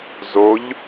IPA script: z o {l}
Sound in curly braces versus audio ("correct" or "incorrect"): incorrect